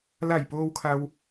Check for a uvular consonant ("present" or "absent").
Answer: absent